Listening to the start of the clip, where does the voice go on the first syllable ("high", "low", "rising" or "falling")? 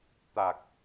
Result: low